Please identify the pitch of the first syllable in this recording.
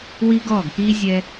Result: high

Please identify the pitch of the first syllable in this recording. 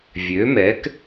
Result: rising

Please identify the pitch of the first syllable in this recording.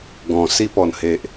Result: low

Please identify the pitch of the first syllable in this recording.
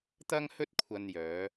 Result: high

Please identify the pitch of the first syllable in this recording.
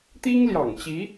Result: high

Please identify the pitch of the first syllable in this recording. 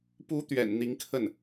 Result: rising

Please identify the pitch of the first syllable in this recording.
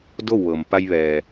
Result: falling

